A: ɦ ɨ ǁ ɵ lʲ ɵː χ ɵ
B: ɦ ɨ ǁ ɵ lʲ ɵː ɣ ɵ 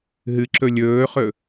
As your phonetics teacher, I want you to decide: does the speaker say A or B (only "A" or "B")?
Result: A